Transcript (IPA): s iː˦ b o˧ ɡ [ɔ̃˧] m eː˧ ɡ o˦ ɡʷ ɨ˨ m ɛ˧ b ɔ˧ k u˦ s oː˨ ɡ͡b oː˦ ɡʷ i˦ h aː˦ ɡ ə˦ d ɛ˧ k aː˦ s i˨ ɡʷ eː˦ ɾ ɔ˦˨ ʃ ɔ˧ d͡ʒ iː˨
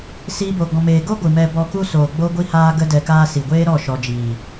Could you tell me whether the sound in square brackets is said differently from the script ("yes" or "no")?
no